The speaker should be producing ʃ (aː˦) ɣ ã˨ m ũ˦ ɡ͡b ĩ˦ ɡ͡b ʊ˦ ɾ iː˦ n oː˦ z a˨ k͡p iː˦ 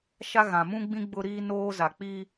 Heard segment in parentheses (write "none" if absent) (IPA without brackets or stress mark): a˦